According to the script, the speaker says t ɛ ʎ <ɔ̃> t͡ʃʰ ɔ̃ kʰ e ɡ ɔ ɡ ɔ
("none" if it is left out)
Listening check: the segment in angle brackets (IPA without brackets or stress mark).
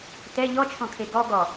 ɔ